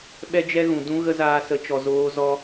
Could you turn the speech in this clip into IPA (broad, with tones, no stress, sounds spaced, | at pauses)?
ɓ ɛ˦ d͡ʒ ɛ˦ ɣ ũ˨ d ũ˦ ɣ ə˦ z aː˧ s ə˨˦ t͡ʃ ɔ˨ z oː˦ z ɔ˦